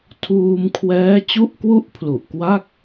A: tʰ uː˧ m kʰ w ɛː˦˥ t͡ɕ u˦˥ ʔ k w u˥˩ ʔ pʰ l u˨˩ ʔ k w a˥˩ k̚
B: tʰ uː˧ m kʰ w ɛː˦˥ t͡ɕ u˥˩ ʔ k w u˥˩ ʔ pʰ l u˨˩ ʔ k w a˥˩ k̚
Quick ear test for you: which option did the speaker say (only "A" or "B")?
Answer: B